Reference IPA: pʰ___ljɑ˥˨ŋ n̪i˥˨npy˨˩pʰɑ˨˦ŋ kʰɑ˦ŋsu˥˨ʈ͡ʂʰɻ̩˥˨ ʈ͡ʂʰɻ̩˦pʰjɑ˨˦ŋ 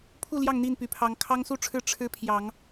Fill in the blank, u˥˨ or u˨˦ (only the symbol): u˥˨